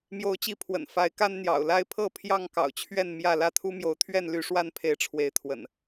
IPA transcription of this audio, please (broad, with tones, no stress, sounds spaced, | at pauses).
m j o˨˦ ʊ̯ t͡ɕ i˨˦ pʰ w ə̰˨˩ n f a˨˦ ɪ̯ k a˦ n n̪ j ɑ̰˨˩ ʊ̯ l a˦ ɪ̯ pʰ ɤ˥˨ pʰ j ɑ˥˨ ŋ k ɑ̰˨˩ ʊ̯ t͡ɕʰ ɥ ɛ˥˨ n m j ä˥˨ l ä˥˨ t̪ʰ u˦ m j o˨˦ ʊ̯ t̪ʰ ɥ ɛ˥˨ n l y˦ ʂ w a˥˨ n pʰ e˨˦ ɪ̯ ʈ͡ʂʰ w e˨˦ ɪ̯ t̪ʰ w ə̰˨˩ n